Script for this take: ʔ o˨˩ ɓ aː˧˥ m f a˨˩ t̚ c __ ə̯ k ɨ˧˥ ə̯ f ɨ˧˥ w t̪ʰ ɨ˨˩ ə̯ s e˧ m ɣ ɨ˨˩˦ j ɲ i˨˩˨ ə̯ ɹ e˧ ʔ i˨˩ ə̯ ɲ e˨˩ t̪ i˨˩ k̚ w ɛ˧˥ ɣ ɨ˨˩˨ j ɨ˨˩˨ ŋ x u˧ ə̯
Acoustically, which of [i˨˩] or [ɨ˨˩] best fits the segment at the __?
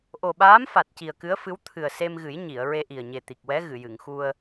i˨˩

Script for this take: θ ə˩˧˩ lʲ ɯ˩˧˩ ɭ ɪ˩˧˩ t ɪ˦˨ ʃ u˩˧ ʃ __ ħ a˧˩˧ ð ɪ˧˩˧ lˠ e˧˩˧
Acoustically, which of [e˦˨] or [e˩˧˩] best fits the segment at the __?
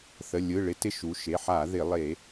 e˩˧˩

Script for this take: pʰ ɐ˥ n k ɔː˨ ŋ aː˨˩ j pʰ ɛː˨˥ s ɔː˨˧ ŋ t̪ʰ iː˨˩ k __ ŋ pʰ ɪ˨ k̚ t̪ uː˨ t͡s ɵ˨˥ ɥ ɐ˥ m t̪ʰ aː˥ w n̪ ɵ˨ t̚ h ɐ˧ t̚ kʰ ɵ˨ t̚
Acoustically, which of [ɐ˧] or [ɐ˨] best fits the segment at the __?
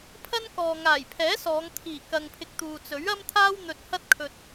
ɐ˨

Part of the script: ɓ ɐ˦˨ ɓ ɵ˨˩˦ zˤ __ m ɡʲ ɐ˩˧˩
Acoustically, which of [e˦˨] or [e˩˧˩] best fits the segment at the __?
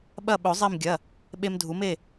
e˦˨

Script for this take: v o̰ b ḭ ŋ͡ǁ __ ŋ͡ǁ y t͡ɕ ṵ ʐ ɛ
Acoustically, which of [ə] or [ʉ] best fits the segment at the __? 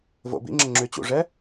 ə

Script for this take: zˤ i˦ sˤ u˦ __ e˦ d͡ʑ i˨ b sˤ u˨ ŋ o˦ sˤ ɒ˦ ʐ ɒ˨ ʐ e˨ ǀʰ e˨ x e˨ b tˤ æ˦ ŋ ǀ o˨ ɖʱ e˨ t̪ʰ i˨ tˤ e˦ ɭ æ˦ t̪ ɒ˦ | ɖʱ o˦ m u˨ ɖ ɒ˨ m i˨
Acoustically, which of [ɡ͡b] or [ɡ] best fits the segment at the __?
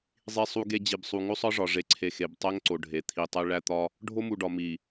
ɡ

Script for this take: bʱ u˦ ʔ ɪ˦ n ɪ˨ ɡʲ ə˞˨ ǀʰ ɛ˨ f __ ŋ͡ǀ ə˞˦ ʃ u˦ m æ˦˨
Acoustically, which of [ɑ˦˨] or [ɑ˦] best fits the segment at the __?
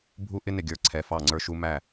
ɑ˦˨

